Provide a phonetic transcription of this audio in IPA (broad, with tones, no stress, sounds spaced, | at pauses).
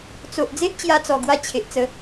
t͡s o˨ ʔ d͡z e˦ ʔ t͡ɕ j a˧ t͡s ɔ˨˩ ɡ w a˧ t͡ɕʰ e˨ ʔ t͡s ə˧